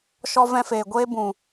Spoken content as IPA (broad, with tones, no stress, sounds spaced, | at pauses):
ʃ ɔ˧ v ɛ̃˧ f eː˨ ɡʷ eː˧ b ũ˨